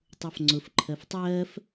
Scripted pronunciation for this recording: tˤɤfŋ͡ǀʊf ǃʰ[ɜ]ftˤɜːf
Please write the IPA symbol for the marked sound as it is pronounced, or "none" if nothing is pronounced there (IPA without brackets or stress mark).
ɜ